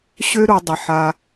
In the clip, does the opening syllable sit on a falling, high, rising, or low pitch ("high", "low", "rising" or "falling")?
high